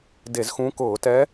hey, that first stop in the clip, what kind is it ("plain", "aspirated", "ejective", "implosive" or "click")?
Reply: plain